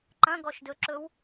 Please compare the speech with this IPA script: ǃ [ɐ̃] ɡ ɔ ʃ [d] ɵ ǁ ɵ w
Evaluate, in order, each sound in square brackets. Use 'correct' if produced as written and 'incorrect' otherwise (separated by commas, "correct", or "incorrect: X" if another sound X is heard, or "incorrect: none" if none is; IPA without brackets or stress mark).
correct, correct